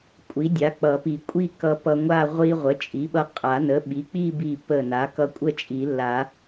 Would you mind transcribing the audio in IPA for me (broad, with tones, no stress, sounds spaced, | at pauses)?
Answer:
kʷʼ i˩˥ dʲ a˩˥ k͡p ʌ˨˩˦ p i˨˩˦ kʷʼ i˥˧ k ʌ˧ p ʌ˧ ŋʷ a˥˧ ʁʷ i˧ ʁʷ ə˩˥ t͡ʃʼ i˩˥ ɓ ʌ˧ qʼ a˨˩˦ n ə˩˥ ɓ i˩˥ k͡p i˥˧ b i˧˩ p ə˧˩ n a˩˥ k ʌ˧ kʷʼ ə˥˧ t͡ʃʼ i˨˩˦ lː a˨˩˦